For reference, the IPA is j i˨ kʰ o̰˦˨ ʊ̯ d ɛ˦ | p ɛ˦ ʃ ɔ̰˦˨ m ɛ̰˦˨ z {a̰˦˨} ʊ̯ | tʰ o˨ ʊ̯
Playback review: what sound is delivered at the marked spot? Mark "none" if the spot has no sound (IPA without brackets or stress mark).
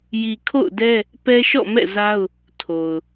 a˦